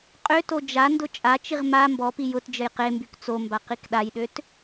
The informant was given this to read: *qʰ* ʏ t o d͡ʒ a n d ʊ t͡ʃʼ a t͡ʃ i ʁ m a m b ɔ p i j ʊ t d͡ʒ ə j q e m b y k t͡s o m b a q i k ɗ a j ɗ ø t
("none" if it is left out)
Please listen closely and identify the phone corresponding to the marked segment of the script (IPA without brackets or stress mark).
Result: qʼ